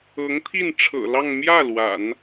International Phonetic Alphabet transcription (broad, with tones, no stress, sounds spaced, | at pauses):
ɤ˧˥ ŋ t̪ʰ i˥˩ n ʈ͡ʂʰ ɤ̰˨˩ l ɑ˥˧ ŋ m j ä˥˩ l w a̰˨˩˦ n